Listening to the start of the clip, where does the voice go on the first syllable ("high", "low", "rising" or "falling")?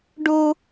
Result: high